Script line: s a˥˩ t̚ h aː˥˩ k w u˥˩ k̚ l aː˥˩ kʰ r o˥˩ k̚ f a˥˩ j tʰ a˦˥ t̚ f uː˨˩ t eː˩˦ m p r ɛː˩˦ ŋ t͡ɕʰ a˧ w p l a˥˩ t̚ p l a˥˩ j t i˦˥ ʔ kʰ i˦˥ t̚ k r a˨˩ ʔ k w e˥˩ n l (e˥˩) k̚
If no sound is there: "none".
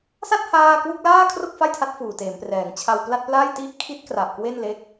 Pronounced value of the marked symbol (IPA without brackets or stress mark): e˦˥